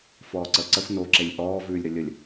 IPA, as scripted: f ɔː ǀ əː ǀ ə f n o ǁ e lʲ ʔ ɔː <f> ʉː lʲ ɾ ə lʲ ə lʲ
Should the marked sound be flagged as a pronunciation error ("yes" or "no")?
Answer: yes